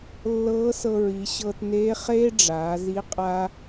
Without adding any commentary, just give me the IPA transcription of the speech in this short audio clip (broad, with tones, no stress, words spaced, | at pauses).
lːɤː˧˥sɤ˧ ɹi˩˧ ɕɤː˧tneː˧˥ χeː˥ɖ͡ʐaː˩˧zi˧˥ qʼa˥